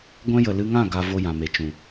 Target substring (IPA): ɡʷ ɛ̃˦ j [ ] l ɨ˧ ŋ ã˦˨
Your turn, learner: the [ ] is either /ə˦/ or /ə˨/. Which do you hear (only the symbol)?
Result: ə˨